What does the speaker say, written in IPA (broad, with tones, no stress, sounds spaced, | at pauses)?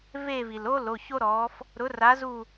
v e˦˨ v i˩ l o˥ l o˩˧˩ ç o˥ ɾ ɔː˨˥ f | ɾ ʊ˨˥ r a˨˥ z u˦˨